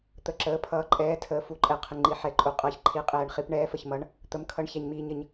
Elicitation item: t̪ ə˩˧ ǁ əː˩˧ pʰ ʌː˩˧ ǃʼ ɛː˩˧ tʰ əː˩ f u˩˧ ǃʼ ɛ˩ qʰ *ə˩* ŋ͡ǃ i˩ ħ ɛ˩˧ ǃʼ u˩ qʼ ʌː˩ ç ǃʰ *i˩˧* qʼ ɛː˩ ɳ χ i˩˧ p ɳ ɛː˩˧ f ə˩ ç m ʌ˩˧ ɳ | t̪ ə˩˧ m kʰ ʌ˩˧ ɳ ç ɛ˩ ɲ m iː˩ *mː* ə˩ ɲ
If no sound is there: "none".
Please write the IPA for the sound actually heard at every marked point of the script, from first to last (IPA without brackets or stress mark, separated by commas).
ə˩, i˩˧, ɲ